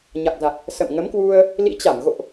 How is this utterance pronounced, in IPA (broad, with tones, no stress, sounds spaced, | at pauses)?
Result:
ɲ a˨˩ k̚ z a˨˩ k̚ | s ə̰˧˨ m ŋ ə˨˦ m k w u˧ ə̯ | l ḭ˧˥ t͡ɕ a˧˩ m ɣ o̰˧˨ ʔ